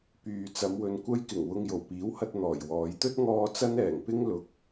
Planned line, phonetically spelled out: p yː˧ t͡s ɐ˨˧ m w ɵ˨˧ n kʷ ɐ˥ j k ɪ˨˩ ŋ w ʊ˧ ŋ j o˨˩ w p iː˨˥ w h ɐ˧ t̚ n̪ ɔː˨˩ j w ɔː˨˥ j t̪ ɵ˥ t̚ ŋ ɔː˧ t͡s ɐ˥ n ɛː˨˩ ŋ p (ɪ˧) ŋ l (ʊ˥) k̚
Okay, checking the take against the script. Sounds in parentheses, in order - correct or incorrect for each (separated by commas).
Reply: incorrect, incorrect